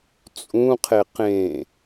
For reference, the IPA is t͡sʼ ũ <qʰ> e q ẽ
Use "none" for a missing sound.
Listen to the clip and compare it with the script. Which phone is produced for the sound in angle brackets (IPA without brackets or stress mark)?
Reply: qʰ